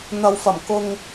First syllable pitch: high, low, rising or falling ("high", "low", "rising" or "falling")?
low